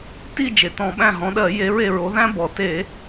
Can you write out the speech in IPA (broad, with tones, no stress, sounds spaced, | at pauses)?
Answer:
t i˦˨ d͡ʒ e˩ t ɔ̃˧˩˧ ɓ æ̃˦˨ ɦ ɔ̃˨˦ ɗ ɜ˧˩˧ j e˨˦ ɹ e˦˨ ɹ o˨˦ ð æ̃˥ b ɔ˩ t e˧˩˧